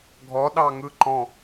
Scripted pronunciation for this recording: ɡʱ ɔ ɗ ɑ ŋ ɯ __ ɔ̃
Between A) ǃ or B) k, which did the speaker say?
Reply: A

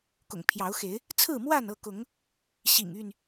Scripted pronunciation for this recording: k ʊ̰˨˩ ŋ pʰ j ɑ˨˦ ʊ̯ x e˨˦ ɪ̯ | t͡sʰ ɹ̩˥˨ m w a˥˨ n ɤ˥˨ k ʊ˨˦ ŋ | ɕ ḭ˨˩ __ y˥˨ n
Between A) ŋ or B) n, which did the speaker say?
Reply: A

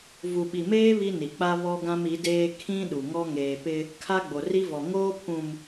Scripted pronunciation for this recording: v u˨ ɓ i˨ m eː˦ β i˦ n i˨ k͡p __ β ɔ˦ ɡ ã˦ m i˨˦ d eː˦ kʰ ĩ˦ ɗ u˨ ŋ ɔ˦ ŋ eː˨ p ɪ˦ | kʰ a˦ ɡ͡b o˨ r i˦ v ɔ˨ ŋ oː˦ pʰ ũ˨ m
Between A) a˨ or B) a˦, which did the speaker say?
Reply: B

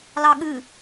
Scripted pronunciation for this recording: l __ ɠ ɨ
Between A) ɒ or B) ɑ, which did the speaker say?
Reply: B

